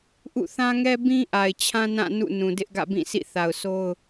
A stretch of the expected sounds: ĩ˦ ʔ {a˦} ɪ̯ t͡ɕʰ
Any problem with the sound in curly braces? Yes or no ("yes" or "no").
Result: yes